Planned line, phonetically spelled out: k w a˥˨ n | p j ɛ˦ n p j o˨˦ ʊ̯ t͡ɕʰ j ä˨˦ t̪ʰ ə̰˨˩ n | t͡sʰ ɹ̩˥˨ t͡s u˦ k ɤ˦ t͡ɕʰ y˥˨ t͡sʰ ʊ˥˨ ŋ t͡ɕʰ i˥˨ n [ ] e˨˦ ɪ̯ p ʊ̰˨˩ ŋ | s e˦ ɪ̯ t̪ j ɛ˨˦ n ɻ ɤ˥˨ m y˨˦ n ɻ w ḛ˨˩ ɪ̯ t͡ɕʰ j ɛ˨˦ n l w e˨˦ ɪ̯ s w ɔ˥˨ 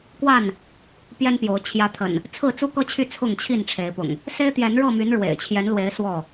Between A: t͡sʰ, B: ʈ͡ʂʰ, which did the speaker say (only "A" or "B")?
B